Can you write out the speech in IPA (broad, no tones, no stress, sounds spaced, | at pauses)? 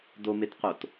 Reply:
d o m e t q o t